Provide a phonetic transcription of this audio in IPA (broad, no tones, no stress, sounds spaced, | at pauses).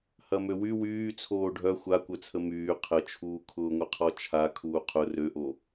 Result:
h ɐ m ø w y w yː t͡sʰ oː ɖʱ œ xʷ a kʷ œ t͡sʰ ə m yː qʰ ə t͡ʃʰ uː kʰ ʊː ŋʷ ə qʰ ɔ t͡ʃʰ a kʰ uː qʰ ʊ r ø ʔ o